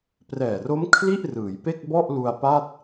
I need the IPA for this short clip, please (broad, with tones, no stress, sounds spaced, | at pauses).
p r ɛː˨˩ r o˦˥ m kʰ l i˥˩ ʔ r ɯː˩˦ j p e˥˩ k̚ b ɔ˥˩ ʔ l u˧ a̯ p a˥˩ t̚